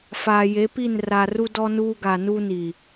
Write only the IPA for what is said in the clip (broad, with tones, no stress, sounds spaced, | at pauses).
f aː˨ j e˨˦ p i˦˨ n r a˨ r u˦ d ɔ˦ n uː˦ ɡ a˨ n uː˦ n iː˨